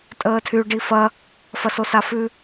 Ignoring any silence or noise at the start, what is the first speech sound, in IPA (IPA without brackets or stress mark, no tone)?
tʼ